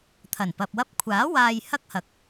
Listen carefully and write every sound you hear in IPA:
t̪ʰ ɐ˨˩ n p ɐ˨ p̚ w ɐ˧ p̚ kʷʰ aː˨˥ w aː˨ j h ɐ˥ k̚ h ɐ˨ k̚

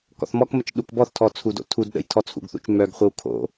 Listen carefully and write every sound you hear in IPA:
k ɔ̰ θ m ɔ k m ə t͡ʃ ɗ u k b ɔ θ tʰ ɔ t͡sʰ u d o̰ tʰ u d ɗ ə̰ j tʰ ɔ t͡sʰ ṵ ɡ θ ṵ t͡ʃ m œ ɡ χʷ ə w kʰ o̰

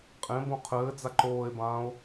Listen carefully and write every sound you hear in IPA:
qʼ ẽ b õ qʰ ɘː d͡z a ǃ oː e̯ b ãː o̯

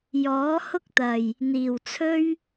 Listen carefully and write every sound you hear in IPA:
j ɔː˨˥ h ʊ˥ k̚ t̪ ɐ˨˩ j | n̪ iː˨˩ w t͡sʰ ɵ˥ ɥ

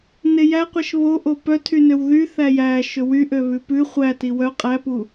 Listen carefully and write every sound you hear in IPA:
n e j æ qʷ ɛ ʃ β o ʔ o p œ tʰ y n ø w ð y θ æ j æ ʃ ɵ w y ʔ ø β ʉ p ʉ χʷ æ t i w œ qʼ æ p u

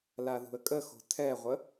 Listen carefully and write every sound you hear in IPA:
l a ð ṳ ə̯ kʼ ə x o̤ tʰ ɛ ʁʷ ə

